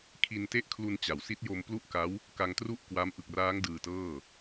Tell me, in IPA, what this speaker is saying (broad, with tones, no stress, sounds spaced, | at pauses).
kʰ i˧ n t e˥˩ ʔ kʰ l u˧ n t͡ɕ a˩˦ w s i˦˥ t̚ j o˧ m p l u˥˩ ʔ k a˦˥ w | k a˧ ŋ t r u˥˩ ʔ k w a˦˥ m ʔ ɯ˨˩ k̚ r aː˦˥ ŋ d ɯː˧ t ɤː˥˩